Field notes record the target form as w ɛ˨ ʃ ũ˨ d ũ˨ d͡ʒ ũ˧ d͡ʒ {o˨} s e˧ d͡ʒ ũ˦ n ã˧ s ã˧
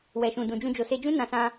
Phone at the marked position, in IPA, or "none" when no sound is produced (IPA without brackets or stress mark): o˨